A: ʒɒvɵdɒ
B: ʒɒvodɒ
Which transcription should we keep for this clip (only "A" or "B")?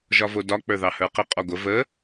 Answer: B